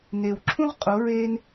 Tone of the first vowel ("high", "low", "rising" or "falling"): low